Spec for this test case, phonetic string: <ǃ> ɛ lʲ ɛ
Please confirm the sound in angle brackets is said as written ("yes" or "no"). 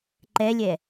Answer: yes